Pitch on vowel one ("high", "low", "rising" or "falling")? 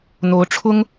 rising